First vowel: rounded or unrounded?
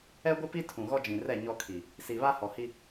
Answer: unrounded